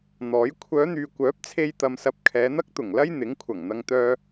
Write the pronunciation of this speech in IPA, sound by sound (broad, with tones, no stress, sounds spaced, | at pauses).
n̪ ɔː˨˥ j kʷʰ œː˨˧ n̪ yː˨ kʷ œː˨˥ p̚ t͡sʰ e˧ j t̪ ɐ˧ m s ɐ˧ p̚ kʰ ɛː˨˧ n̪ ɐ˥ k̚ t̪ ʊ˨˩ ŋ l ɐ˥ j n̪ ɪ˨˥ ŋ kʷʰ ɐ˨˩ ŋ n̪ ɐ˧ ŋ t̪ œː˥